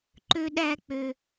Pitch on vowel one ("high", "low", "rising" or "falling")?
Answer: high